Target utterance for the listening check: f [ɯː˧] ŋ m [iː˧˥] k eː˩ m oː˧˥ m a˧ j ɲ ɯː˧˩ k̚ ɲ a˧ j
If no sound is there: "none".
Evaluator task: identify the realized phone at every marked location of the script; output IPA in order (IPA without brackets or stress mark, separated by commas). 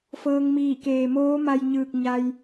ɤː˧, iː˧˩